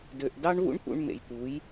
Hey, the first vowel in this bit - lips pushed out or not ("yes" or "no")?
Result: yes